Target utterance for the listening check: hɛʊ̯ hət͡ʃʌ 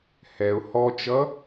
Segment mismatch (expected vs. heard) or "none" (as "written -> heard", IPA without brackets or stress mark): ə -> ɔ